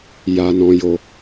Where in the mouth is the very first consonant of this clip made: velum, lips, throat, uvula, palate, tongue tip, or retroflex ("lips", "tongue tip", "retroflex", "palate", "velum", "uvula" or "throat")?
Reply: palate